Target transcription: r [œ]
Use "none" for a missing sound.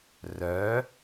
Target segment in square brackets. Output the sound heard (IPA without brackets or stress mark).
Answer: œ